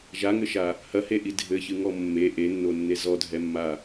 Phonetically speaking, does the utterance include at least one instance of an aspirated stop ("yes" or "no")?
no